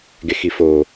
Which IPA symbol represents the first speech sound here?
ɡ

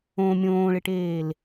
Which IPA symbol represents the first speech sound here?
õ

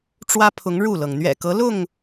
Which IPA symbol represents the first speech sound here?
ʈ͡ʂ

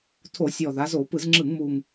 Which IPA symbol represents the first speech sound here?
tʰ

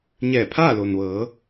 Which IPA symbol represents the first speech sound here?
ɲ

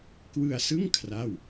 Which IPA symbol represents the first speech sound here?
k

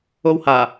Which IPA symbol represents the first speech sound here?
o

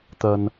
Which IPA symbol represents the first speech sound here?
t̪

